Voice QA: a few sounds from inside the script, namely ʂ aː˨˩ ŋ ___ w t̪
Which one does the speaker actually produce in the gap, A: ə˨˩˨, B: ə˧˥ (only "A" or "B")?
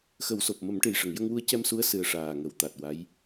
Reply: A